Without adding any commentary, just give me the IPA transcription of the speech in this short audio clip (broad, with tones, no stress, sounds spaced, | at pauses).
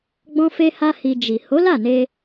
ɡ͡b ɔ̃˦ f e˦ h a˦ h i˧ d͡ʒ i˨ h o˨˦ l a˦˨ n e˧